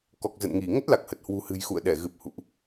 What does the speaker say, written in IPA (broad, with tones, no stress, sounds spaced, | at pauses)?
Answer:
k ɔ˨˩ k̚ z ə̰˧˨ n ŋ i˧˩ ŋ ə˦˥ t̚ l a˨˩ k̚ h ə˨˩ t̚ h w ṳ˨˩ h ɨ̤˨˩ j x ṵ˧˨ ə̯ ɗ ɛ˧˩ ɣ ɨ˨˩ p̚ h ṵ˧˨ ʔ